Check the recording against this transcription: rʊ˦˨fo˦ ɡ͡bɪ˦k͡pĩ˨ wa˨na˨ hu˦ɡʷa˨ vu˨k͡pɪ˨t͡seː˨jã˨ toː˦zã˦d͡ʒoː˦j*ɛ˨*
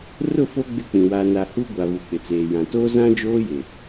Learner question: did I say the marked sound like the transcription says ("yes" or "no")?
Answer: no